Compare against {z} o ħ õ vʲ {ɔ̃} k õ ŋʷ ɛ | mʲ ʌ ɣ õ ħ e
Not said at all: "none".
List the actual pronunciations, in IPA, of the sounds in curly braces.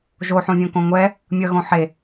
ʒ, õ

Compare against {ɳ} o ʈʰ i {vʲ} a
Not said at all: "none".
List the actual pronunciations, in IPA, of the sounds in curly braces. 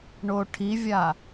ɳ, vʲ

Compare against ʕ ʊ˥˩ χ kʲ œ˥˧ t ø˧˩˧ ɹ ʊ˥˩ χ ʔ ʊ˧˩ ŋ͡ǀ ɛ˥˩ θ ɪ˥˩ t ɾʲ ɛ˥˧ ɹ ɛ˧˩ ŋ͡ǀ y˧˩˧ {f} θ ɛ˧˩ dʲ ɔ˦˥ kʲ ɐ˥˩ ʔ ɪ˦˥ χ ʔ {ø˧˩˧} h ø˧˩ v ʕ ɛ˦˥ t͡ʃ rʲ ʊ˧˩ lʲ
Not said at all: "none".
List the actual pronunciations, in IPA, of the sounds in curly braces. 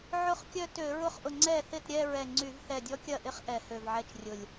v, ɛ˧˩˧

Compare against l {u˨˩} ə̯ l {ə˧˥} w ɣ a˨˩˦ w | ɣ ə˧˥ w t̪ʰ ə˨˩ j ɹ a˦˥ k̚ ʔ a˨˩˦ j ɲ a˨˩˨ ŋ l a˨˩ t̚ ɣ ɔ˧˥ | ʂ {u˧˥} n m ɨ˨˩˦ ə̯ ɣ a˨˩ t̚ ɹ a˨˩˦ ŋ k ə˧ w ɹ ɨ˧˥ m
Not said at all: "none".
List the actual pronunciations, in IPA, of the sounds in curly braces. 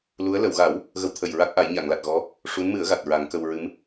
u˧˥, ə˨˩˨, u˧˥

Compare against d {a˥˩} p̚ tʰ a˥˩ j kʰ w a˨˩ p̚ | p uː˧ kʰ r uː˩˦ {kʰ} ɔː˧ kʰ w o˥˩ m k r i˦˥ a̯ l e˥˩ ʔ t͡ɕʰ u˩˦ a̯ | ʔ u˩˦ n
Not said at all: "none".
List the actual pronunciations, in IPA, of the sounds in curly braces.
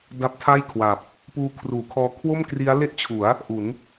a˦˥, kʰ

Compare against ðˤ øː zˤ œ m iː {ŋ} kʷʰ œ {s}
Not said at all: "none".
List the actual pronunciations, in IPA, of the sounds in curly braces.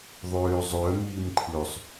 m, sˤ

